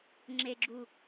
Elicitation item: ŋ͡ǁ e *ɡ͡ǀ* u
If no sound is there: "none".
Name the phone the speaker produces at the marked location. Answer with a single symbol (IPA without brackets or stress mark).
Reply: ɡ͡ǁ